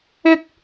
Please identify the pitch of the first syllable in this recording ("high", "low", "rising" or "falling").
high